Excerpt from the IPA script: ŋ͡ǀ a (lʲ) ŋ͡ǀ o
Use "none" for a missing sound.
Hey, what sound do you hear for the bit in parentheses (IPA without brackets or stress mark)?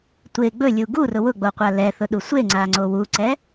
none